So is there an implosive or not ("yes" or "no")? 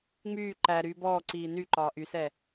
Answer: no